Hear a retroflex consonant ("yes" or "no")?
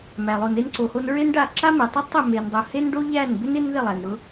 yes